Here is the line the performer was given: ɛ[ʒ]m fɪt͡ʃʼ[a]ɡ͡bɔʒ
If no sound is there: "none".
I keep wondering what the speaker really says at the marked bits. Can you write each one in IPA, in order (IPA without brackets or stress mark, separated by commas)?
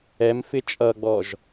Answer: none, ʌ